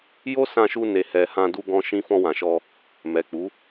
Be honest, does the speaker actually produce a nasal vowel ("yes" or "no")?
yes